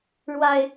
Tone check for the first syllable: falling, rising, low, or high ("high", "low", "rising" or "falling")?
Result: low